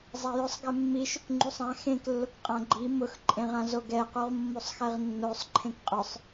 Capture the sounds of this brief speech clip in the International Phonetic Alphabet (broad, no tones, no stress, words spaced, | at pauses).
zˤajʊsˤɡɛ mːiʃʊk ŋ͡ǃusˤã xẽk lːʊkqʼãɡ͡ǃi mʊx ǃʼẽʁãzoɡɛ quʁmːosˤxɛʁnːosˤ ǃʰẽkqʼʊsˤ